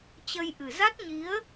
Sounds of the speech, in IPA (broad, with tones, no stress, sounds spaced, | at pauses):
t͡ɕ ə˧ j ʔ ɨ˨˩ z a˦˥ t̚ ɲ i˨˦ ə̯